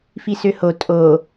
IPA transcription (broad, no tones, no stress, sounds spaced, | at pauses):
f i s ø h o tʼ o